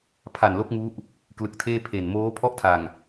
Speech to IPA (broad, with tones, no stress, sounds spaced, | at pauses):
pʰ a˨˩ n l o˦˥ k̚ ŋ u˦˥ ʔ | k l ɯ˨˩ k̚ tʰ eː˥˩ pʰ e˨˩ n m oː˦˥ pʰ ɔ˥˩ ʔ tʰ a˨˩ ŋ